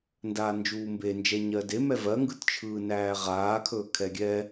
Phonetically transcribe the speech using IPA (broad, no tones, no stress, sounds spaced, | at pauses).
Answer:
n d aː n d͡ʒ uː m b e n d͡ʒ ɛ ɲ ɜ d e m ɛ v ɜ ŋ ɡ ɯ t t͡ʃʰ ɯː n æː ʁ aː kʰ ɵː kʰ ɛ ɡʲ ɛ